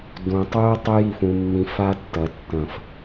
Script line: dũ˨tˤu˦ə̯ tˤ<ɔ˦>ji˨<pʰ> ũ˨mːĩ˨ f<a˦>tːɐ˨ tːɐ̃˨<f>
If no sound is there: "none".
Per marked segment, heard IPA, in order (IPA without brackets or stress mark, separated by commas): ɵ˦, f, a˦, f